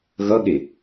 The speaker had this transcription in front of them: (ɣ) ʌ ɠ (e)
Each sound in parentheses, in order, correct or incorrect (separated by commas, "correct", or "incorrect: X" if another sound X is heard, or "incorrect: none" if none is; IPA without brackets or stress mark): correct, correct